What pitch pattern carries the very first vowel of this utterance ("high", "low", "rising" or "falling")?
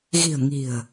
low